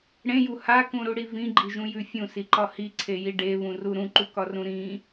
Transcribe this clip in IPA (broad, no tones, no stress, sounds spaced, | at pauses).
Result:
ɽ ẽ j u h a k ũ ɾ u ɽ i v ĩ ɡ͡ǃ i ʒ ũ j ʉ fʲ ũ s i ǃ ɒ h i ǀʰ e j i ɖ e β ũ r u ɾ ũ ǃ u k ɒ r ũ ɾ ĩ